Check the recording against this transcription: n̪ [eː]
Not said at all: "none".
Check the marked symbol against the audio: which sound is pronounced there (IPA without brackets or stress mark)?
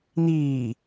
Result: iː